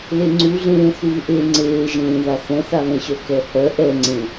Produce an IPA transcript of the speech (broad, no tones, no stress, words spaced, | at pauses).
leŋ͡ǀuɮẽː θuːʔe ŋ͡ǀeːʒẽːða θɛ̃θaβɛ̃ɕœ kɛhœ ʔɛŋ͡ǀẽ